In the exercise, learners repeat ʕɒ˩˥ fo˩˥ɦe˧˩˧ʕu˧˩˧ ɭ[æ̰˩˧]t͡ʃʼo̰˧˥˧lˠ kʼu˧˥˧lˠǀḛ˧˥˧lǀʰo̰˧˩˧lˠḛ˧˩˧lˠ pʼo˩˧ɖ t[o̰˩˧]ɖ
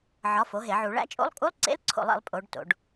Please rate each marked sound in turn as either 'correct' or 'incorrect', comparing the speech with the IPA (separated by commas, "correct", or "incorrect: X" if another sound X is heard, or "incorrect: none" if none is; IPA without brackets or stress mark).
incorrect: æ̰˧˥˧, correct